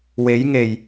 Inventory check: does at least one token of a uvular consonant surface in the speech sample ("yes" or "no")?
no